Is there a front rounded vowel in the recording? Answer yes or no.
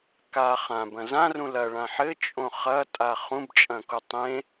no